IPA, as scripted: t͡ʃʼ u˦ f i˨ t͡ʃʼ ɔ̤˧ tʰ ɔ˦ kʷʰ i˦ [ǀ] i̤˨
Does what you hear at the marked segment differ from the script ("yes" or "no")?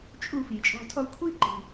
yes